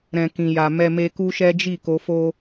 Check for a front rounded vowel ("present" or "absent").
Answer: absent